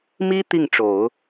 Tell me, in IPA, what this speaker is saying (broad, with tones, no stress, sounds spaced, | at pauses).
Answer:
m i˥ t̪ i˥˩ ŋ ʈ͡ʂ o˨˩˦ ʊ̯